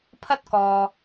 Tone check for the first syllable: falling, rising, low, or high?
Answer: high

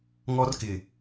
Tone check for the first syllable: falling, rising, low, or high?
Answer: high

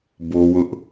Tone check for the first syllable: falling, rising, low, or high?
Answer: high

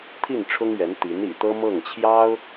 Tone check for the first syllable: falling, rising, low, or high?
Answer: falling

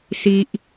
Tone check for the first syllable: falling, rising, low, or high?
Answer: high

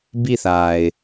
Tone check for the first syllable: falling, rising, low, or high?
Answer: falling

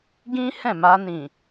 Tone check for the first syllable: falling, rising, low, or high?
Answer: high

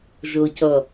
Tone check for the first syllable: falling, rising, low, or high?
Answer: low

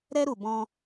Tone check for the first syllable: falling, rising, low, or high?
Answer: high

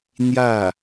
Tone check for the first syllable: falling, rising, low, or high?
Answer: falling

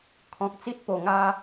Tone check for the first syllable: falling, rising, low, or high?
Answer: low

